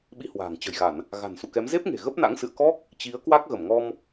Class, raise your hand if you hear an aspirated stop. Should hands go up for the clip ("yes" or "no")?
no